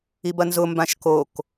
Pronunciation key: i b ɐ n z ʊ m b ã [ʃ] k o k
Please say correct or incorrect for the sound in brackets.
correct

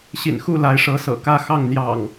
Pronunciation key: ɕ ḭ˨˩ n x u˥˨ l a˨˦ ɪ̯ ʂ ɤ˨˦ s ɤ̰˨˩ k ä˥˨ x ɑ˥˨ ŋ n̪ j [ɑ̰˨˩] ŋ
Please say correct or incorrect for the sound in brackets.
correct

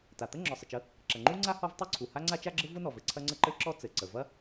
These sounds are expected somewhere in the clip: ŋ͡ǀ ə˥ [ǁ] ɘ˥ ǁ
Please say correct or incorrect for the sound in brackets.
incorrect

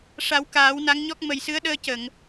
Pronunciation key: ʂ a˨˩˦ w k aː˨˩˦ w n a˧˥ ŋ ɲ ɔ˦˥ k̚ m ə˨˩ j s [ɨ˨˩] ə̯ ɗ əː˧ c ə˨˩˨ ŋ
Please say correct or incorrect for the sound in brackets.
incorrect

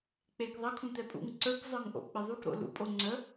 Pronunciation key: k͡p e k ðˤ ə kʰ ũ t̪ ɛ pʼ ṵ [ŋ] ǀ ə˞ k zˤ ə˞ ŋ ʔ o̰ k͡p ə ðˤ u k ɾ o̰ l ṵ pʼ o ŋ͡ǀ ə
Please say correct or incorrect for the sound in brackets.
correct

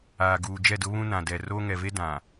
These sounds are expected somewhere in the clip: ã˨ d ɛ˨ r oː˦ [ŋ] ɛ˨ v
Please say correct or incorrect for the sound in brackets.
correct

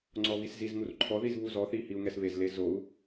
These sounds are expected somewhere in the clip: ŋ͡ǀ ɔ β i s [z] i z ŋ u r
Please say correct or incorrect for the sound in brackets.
correct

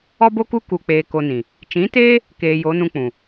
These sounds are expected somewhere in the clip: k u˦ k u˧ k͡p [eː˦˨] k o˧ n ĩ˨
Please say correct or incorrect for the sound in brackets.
incorrect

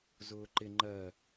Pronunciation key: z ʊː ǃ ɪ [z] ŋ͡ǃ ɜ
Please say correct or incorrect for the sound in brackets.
incorrect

